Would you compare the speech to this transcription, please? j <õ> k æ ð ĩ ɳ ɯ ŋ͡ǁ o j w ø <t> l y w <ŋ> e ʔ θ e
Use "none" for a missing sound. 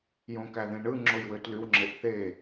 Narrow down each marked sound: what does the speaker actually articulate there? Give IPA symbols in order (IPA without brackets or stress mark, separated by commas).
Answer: õ, t, ŋ͡ǁ